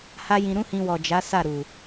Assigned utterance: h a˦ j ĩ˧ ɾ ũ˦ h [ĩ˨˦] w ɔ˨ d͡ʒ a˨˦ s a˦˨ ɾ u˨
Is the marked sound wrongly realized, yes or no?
yes